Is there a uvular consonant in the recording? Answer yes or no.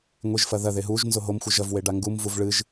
no